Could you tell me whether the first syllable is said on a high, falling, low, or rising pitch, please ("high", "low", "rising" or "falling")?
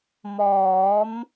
rising